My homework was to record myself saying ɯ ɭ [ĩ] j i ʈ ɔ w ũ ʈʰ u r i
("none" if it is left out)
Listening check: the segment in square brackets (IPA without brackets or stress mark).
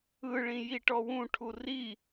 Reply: ĩ